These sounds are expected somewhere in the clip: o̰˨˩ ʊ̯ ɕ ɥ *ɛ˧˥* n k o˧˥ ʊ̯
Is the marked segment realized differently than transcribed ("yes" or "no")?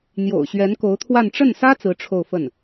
no